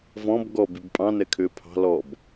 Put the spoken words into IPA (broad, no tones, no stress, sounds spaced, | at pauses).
v ɔ̃ b ɡ ɔ b y b pʼ ɑ̃ n ɛ kʰ ʏː pʰ ɑ̤ l ɔ b